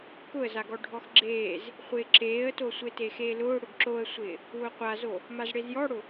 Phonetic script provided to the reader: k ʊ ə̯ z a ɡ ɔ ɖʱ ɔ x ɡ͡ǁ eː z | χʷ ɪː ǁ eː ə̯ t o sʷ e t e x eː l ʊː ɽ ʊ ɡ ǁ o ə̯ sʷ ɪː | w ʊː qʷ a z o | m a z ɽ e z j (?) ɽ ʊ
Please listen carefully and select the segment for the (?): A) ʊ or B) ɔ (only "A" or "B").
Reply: B